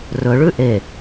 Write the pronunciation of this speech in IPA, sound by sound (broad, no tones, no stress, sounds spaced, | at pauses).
r ɵ ɭ ʉ ʔ e